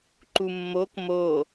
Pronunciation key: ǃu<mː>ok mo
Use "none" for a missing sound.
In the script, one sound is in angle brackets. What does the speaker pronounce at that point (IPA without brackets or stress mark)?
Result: mː